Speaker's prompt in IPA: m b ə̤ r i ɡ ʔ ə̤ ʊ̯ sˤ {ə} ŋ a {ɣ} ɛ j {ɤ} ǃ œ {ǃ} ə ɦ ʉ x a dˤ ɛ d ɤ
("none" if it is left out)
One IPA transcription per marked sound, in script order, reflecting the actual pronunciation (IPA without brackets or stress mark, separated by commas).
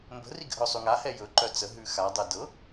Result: ʉ, h, ɵ, t͡s